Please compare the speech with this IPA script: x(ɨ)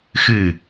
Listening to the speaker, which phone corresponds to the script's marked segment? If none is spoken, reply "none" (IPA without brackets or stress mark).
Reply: ɨ